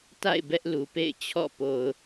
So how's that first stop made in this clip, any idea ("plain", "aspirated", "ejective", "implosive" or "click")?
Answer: plain